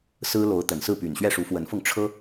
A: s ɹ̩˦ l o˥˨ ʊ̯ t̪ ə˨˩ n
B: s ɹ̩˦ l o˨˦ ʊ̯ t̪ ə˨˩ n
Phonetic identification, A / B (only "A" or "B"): B